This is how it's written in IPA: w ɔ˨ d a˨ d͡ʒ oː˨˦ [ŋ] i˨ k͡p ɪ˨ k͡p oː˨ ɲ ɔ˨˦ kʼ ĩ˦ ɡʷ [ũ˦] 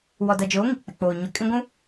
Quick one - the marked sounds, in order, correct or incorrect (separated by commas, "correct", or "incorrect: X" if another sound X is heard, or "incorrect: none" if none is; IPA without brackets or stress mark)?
correct, correct